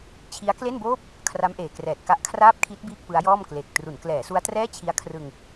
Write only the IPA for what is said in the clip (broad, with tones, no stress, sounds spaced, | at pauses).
t͡ɕʰ i˦˥ a̯ k l e˥˩ n b oː˥˩ p̚ | kʰ r a˦˥ m ʔ eː˨˩ k r ɛː˨˩ t̚ k a˦˥ ʔ kʰ r aː˥˩ p̚ kʰ i˦˥ t̚ b iː˥˩ k̚ p ɯ˦˥ a̯ j ɔː˥˩ m k l e˨˩ k̚ t r u˩˦ n k l ɛː˩˦ s u˦˥ a̯ t r ɛː˥˩ t͡ɕʰ i˦˥ a̯ kʰ r ɯ˧ ŋ